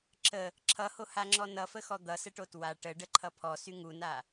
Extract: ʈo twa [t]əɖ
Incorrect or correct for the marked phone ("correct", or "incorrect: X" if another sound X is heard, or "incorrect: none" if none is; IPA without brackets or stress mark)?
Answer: incorrect: ʈ